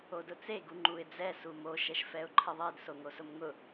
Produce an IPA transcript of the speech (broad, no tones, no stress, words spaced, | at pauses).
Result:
odʊt͡se ɡuŋ͡ǃuɪ̯ d͡zɛ sumo ʃɛʃfɛʊ̯ǃʰɪðˤid soŋosʊmŋʊ